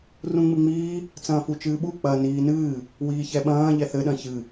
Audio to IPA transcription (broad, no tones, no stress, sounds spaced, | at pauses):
r ũ ŋ͡m ɨ ŋ͡m iː | t͡s ɐ̃ː f u t͡ʃ ɨː ɓ u k͡p ɐ n iː n ɨː | w iː ç ɛ ɓ ɐ̃ː ʎ ɛ θ ɘ ɗ ɐ̃ ç ɨ